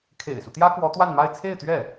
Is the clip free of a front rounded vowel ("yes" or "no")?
yes